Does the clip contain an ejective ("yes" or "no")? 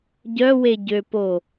no